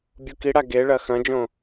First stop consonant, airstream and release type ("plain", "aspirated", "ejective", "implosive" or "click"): plain